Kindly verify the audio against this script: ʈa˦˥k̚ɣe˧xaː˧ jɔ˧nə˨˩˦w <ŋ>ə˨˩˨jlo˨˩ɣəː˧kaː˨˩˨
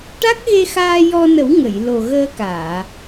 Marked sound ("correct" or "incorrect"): correct